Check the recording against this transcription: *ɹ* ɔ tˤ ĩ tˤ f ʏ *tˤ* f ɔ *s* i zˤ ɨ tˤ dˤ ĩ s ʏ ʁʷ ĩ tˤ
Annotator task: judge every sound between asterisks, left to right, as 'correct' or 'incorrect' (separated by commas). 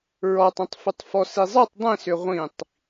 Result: correct, correct, correct